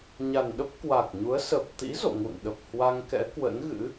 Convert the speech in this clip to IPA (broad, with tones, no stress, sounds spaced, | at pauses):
ɲ a˨˩ n ɗ ə˦˥ p̚ k w a˨˩ k̚ ɲ u˨˦ ə̯ s ə˨˩ p̚ t̪ ḭ˧˥ z o̰˧˨ ŋ ṵ˧˨ n ɗ ə˨˩ p̚ h w a˧ ŋ k ɛ̰˧˥ k w ə̰˧˥ n ɣ ɨ̰˧˥